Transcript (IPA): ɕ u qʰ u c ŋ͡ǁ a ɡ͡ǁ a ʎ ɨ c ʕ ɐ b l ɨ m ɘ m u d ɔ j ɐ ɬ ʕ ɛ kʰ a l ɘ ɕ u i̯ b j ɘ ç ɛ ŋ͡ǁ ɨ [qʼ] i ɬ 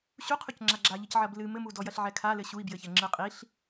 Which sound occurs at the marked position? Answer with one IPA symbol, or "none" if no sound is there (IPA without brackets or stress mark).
qʼ